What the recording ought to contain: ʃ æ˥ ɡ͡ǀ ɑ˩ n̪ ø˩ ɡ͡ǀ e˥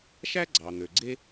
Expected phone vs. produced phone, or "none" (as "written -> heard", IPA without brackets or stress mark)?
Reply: none